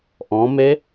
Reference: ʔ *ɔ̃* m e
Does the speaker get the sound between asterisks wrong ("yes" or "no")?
no